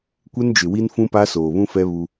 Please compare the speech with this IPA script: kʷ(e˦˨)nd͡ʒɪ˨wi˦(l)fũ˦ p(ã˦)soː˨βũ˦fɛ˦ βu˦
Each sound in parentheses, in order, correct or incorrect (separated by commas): incorrect, incorrect, incorrect